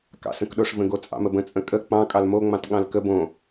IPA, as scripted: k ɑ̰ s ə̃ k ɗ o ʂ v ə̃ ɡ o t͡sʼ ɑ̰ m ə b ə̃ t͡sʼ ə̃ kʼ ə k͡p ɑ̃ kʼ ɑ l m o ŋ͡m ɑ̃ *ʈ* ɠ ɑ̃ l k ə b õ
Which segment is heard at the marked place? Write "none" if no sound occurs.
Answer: t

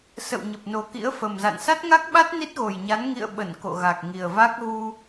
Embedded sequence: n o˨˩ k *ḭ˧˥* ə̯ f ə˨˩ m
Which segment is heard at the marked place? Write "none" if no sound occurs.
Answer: ḭ˧˥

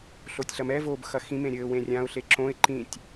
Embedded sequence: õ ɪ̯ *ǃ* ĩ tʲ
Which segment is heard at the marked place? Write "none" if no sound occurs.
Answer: ǃ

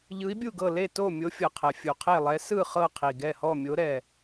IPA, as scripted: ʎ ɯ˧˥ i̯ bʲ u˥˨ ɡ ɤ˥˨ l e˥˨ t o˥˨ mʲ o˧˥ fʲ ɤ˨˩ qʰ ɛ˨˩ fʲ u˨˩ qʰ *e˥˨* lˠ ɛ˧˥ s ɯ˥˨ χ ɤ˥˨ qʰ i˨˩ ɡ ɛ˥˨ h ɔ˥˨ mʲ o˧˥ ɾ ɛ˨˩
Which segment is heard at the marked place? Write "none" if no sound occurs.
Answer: e˥˨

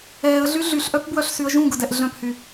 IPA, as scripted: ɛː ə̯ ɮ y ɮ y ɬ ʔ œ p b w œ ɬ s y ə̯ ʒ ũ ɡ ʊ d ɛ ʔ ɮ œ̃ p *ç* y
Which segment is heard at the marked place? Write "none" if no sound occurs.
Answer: h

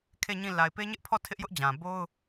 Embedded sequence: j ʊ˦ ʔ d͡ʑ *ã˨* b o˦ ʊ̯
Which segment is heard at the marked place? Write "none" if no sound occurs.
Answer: ã˨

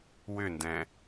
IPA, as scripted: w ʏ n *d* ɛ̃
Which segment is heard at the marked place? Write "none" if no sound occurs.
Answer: d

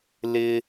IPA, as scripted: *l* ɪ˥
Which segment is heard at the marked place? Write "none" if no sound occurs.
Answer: l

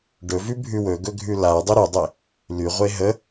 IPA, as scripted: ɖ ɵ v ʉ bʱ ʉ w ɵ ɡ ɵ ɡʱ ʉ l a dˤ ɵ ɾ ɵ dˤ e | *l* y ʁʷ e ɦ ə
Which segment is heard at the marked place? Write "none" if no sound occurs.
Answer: l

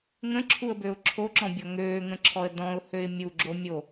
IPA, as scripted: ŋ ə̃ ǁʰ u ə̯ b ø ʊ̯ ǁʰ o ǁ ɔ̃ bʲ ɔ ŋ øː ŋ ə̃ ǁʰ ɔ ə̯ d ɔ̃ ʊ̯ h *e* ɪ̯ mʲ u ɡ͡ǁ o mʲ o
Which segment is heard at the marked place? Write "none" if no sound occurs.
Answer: ø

